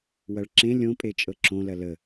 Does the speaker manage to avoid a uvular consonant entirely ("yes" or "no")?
yes